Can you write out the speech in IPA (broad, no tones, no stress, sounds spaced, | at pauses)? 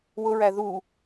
w ʊ ɹ æ ð u